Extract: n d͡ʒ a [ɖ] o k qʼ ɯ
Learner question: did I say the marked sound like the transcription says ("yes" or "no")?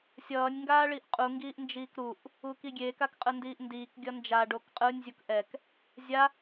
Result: yes